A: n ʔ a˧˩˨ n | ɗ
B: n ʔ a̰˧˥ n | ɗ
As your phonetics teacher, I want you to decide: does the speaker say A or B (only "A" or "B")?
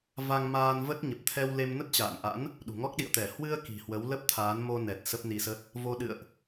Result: B